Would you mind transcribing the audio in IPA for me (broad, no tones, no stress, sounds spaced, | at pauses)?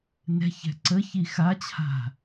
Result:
n ɛ̤ ç ɛ̤ ǀ ə ç i x a t͡ɕʰ a̤